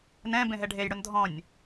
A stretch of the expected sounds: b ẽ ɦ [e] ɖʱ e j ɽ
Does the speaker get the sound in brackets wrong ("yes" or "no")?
yes